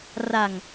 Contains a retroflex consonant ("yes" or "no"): no